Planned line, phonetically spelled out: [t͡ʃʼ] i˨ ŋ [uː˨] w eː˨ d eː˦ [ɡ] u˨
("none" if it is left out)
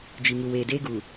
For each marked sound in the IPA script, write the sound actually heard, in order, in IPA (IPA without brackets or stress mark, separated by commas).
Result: d͡ʒ, u˨, ɡ